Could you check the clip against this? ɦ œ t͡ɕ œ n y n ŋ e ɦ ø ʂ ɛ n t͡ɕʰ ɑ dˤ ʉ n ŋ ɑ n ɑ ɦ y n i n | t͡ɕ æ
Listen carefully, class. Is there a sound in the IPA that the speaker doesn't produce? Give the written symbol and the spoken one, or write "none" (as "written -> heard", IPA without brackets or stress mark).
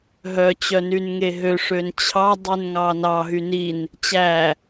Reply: ɛ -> ø